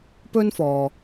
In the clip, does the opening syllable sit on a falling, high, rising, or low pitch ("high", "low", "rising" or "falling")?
high